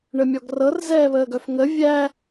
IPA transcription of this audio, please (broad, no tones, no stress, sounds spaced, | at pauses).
ɳ ə mʲ ɔ ɡ r ɤ r z ɛː β əː ɡ œ f ŋ ə vʲ æ